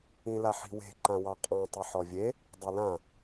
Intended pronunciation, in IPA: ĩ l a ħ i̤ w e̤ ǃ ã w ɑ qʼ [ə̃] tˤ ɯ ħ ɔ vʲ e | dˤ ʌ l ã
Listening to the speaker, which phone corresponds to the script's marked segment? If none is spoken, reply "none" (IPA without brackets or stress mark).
ɑ̃